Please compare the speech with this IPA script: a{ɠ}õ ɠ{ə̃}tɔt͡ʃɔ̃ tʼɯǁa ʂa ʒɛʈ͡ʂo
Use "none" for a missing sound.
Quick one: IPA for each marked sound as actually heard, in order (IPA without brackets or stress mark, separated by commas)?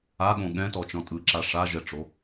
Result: ɠ, ɛ̃